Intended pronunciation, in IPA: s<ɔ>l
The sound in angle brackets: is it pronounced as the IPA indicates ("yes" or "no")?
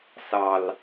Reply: no